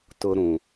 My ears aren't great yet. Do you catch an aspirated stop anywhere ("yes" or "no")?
no